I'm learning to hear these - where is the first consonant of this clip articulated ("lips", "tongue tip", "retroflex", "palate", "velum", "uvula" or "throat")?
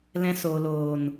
tongue tip